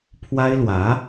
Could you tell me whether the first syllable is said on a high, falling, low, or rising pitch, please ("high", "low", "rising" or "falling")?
high